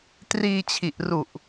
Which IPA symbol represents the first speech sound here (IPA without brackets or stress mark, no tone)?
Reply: t